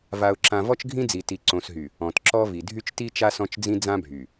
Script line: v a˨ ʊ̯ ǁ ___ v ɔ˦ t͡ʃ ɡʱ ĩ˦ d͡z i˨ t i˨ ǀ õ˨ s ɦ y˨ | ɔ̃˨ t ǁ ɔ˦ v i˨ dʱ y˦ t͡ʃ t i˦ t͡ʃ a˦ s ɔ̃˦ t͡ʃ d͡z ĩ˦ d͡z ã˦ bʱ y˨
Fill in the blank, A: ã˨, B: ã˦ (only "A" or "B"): A